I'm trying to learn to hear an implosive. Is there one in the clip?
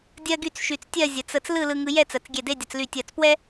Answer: no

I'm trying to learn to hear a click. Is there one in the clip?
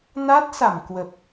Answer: no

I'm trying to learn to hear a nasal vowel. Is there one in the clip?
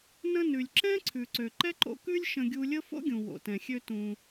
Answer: yes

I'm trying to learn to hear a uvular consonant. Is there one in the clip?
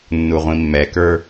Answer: yes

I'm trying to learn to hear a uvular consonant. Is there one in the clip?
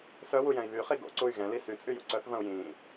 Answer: yes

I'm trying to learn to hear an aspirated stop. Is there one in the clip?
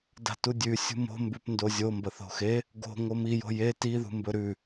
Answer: no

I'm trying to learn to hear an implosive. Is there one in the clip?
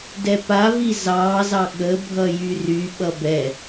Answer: yes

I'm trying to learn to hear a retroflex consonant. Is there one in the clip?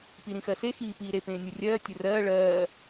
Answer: yes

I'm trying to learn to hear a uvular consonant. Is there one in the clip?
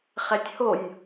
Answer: yes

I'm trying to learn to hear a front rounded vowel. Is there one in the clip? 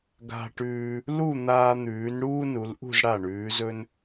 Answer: no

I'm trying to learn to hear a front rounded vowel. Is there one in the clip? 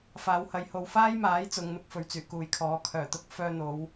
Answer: yes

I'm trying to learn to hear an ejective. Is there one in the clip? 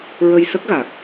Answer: no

